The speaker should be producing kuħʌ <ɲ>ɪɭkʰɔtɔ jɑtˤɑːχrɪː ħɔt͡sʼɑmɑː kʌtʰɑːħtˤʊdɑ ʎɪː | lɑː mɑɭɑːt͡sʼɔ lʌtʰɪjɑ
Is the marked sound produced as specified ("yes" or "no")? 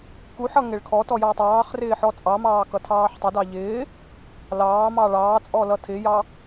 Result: no